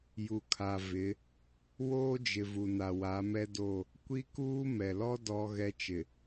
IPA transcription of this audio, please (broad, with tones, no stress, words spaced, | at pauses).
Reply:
ju˨kʰa˨ vɪ˨˦ | woː˦d͡ʒɪ˨ vu˨na˨ wa˨˦mɛ˦ do˦˨ | kʷi˦kuː˦ mɛ˨lɔ˦ dɔ˦ ɣɛ˦t͡ʃɪ˨